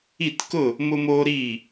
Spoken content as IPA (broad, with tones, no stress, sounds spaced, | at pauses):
i˥˨ t k ʊ˥˨ | m ʊ˥ m oː˥ ɾ iː˥˨